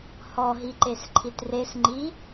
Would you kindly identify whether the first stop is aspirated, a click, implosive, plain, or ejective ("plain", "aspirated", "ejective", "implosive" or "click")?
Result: click